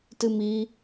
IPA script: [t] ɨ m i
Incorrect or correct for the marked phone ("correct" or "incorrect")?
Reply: correct